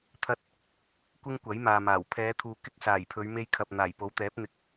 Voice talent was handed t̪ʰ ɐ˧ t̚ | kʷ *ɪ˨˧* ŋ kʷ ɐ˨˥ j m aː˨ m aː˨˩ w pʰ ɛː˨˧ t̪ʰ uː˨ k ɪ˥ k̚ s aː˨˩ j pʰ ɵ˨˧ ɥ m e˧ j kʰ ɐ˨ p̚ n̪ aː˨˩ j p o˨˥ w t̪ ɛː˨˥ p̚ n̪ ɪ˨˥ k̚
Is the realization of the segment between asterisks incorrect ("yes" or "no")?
yes